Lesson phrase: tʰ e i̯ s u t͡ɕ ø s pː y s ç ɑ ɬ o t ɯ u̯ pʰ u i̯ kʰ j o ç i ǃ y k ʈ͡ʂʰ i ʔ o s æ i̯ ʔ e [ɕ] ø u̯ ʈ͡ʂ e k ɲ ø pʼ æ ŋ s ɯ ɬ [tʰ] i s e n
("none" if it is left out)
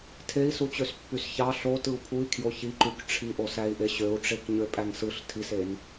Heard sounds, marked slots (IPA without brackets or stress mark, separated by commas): ɕ, tʰ